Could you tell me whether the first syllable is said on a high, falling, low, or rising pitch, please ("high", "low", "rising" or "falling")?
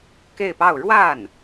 falling